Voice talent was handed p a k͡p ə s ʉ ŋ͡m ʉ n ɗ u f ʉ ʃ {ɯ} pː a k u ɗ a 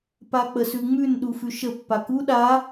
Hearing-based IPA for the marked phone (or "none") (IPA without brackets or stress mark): ə